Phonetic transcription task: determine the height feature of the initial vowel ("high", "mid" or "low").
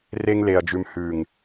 mid